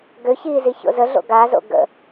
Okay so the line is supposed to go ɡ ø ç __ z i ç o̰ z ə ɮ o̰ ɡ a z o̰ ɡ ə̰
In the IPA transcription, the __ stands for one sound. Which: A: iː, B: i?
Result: A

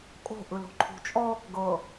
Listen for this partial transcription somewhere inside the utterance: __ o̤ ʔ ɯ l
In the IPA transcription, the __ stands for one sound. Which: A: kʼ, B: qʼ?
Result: A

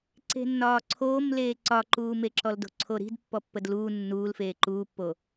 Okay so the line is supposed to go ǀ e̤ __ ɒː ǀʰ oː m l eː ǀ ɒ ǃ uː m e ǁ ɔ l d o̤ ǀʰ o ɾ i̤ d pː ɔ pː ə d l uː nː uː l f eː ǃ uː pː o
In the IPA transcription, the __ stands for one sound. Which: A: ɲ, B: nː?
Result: B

